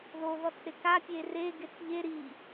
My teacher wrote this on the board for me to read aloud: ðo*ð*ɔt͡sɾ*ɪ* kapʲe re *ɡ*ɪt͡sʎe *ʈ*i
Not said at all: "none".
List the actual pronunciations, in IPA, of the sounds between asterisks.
ð, ɪ, ɡ, ɾ

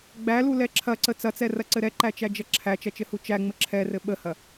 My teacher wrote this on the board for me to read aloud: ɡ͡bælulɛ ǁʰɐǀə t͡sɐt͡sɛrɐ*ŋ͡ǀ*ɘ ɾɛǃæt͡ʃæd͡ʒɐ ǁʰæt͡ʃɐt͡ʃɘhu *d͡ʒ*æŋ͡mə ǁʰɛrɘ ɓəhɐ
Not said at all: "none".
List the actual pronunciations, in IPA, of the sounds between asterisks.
ǀ, t͡ʃ

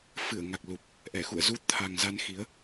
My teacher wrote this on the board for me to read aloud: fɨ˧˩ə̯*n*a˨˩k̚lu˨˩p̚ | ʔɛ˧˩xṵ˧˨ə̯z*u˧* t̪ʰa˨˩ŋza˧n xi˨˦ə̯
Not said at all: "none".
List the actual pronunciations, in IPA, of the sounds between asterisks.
ŋ, u˧

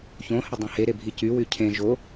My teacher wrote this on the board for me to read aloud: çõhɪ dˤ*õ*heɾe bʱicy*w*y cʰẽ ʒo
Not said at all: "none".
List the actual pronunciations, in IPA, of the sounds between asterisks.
õ, w

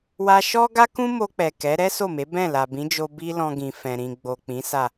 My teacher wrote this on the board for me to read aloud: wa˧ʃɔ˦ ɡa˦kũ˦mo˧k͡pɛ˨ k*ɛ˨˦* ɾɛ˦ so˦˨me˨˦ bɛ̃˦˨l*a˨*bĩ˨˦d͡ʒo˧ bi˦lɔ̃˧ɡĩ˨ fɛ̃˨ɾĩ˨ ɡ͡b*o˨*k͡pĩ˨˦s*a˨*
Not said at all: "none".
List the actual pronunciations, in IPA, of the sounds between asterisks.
ɛ˨˦, a˨, o˨, a˦˨

